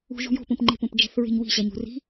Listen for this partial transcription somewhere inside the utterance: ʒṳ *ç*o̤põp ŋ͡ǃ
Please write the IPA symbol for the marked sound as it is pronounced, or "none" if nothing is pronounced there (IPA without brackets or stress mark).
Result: j